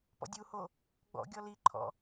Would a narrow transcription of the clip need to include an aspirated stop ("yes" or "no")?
yes